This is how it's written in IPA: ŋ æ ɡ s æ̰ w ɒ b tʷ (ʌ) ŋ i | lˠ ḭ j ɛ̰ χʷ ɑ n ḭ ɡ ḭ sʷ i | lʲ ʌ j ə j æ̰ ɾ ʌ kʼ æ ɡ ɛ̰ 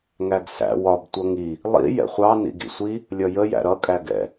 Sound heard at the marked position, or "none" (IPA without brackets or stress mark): ʌ